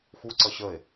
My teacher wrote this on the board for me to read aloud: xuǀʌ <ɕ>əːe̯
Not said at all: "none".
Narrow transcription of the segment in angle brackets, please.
ɕ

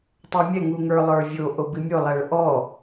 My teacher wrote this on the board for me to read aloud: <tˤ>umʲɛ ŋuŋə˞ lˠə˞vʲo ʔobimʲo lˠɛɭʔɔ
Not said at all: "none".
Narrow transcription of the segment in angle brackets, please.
tˤ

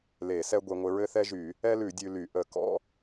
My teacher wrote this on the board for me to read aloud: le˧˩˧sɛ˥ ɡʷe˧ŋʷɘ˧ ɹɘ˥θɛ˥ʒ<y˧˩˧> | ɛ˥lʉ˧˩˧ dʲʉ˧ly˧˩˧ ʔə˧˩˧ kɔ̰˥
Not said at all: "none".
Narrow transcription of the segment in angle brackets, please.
y˧˩˧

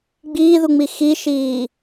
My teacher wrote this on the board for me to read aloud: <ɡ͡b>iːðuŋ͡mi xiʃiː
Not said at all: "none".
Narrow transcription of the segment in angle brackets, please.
ɡ͡b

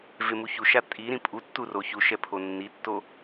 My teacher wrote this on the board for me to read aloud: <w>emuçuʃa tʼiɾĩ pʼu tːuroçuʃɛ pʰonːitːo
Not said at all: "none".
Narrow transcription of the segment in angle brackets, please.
v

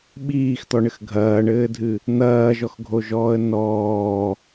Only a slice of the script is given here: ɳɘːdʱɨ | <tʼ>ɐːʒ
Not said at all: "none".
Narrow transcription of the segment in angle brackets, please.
n̪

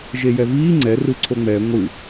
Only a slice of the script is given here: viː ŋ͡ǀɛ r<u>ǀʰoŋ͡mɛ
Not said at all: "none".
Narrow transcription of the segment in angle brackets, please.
ɯ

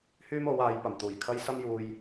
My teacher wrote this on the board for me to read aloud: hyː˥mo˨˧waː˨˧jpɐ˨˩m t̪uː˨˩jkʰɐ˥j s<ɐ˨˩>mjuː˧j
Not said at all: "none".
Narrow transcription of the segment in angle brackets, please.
ɐ˥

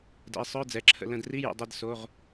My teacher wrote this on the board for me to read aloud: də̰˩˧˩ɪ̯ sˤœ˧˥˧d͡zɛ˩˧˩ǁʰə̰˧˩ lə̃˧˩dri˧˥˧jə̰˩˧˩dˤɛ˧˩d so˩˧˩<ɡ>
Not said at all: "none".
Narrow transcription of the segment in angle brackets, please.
ʁ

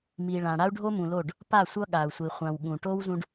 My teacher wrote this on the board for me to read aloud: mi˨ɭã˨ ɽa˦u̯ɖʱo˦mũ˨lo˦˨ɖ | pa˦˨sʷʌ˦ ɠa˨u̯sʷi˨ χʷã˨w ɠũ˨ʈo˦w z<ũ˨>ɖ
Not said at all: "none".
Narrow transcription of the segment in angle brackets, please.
ũ˦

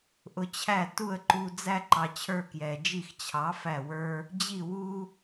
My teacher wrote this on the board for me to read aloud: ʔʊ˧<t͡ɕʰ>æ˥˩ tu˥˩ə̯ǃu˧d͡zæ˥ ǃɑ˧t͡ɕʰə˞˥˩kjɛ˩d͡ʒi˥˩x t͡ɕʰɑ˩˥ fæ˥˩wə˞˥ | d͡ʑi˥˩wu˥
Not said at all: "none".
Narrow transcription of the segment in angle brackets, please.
t͡ɕʰ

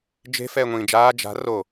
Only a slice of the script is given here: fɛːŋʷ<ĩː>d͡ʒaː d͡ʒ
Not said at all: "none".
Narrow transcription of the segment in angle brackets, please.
ĩː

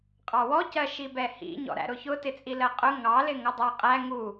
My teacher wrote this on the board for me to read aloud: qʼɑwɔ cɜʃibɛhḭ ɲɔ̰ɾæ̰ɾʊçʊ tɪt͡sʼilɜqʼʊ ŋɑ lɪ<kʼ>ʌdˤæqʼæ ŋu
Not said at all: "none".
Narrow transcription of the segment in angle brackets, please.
ŋ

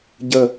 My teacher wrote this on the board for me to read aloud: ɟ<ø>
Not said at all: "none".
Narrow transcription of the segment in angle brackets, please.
ə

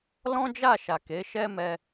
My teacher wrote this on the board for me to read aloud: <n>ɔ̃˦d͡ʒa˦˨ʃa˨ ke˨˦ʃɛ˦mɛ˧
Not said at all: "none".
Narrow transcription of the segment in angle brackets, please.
l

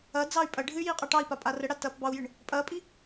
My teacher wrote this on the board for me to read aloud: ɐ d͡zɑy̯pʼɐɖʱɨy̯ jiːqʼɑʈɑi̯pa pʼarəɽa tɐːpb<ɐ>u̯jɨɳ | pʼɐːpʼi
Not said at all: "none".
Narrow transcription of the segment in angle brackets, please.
ɑ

